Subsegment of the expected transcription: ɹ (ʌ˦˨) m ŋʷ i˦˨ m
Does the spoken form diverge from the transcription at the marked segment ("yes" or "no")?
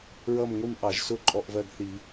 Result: no